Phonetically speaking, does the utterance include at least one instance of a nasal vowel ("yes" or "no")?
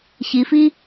no